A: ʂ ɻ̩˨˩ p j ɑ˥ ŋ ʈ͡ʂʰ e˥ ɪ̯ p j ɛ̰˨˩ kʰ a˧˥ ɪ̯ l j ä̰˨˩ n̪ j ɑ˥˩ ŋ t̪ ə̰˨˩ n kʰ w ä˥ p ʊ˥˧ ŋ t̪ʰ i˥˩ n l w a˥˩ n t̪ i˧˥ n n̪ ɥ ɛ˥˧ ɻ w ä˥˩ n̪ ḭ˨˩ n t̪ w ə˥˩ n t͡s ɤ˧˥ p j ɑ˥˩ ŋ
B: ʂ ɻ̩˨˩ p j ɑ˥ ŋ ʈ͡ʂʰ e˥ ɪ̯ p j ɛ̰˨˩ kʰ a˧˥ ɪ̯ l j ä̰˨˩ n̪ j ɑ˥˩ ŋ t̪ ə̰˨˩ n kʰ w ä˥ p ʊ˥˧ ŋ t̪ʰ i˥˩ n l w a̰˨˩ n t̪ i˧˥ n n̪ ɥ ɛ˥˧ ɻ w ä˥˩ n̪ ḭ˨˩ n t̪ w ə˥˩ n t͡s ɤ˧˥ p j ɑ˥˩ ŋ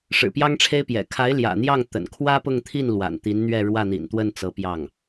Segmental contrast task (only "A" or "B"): B